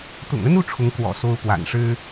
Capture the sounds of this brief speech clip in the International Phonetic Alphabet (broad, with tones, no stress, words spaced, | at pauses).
t̪ʊ̰˨˩ŋə˥nu˥˩ ʈ͡ʂʰʊ˧˥ŋ kwɔ̰˨˩ so˥ʊ̯pwa̰˨˩n ʂɻ̩˥